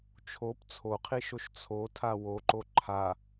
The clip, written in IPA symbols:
t͡ʃʰop t͡sʰoqʰiʃoʃ t͡sʰotʰa woǃo ǃʰa

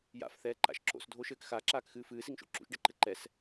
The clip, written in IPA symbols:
ja̰fθɛːǃa̰ʃ ǁo̰sdʱoʃɘːk xaǁaːkxɨː fɨːsiŋʃo̰ ǁṵʃɖɛǃɘ ǃɛs

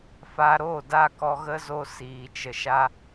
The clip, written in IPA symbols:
fa˧ɾo˦˨da˦˨kɔ˧ ɣə˦zo˦ siː˧t͡ʃə˧ʃa˦

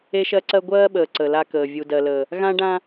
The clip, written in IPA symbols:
e˦ʃɜ˦ǀɜ˦ ɡʷɜː˦ɓəː˨ ǀə˨la˦kəː˨ vʲu˨dɜ˨ləː˨ | ɣã˦ɖã˦

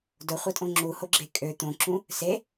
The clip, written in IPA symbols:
dʊχʷɐtʼõ ŋ͡ǁuhoɡ͡ǁe kʼø t̪õǁũ | se

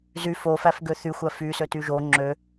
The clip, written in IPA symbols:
zy fofæfɡø θyxʷæ fysøty ʒo ŋ͡ǁø

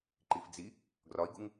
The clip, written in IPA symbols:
ǃifd͡zi | ɡrɒi̯ɡuŋ

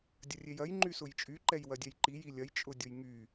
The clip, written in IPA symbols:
dʲɐrʲejɐj ŋ͡ǃysʊjt͡ʃʼy ǃɛjwɐdʲɛjǃi jilʲɐj t͡ʃʼʊdʲʊjŋy

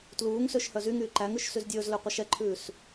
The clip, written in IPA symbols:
tluːŋsøʃ hœzyŋyː ǃæŋʉʃ syzdʲɵːzlø qʷœʃɛǃʰʉːs

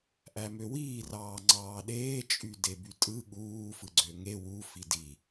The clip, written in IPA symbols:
ʔæmøwiː rɑːŋ͡ǀɑːɗeː t͡ʃʼydebytʼɯ ɠuː fɯɡ͡ǀøŋe wu fidi

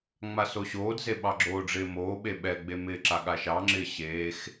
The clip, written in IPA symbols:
ŋ͡masoɕoːdze ɓɑɡ͡ǁoːɖ͡ʐɪːmoː ɓeɓɛɡ͡be mɪːǁa ɠaʃɑŋ͡ǁɪː ɕeːx

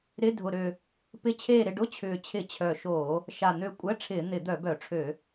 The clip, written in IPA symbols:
ɾɪ˧˥˧ dʱʊ˨˩ɾø˨˩ | pɪ˧˥˧t͡ɕʰeː˦˨ɾɪ˦˨ ɖʊ˧˥˧t͡ɕʰʏː˨˩ t͡ɕʰɪ˧˩˧ t͡ɕʰœ˨˩ʃoː˧˩˧ | ʃa˨˩ n̪ø˨˩ kʷʼɛ˧˥˧ʈ͡ʂʰɪː˧˩˧ n̪ɪ˧˩˧ d̪œ˧˩˧bœ˧˩˧ʈ͡ʂʰø˧˩˧

